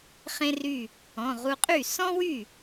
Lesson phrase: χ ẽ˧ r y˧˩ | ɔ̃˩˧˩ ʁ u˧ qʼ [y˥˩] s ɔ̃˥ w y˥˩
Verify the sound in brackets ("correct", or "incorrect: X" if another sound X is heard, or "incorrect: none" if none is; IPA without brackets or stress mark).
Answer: correct